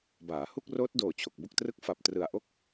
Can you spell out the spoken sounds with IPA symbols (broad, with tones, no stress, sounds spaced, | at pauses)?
b aː˩˦ h u˥˩ k̚ r oː˦˥ t̚ d oː˨˩ t͡ɕʰ o˨˩ k̚ b o˥˩ k̚ t r ɯ˥˩ k̚ f a˨˩ p̚ t r ɯ˨˩ a̯ ʔ o˥˩ k̚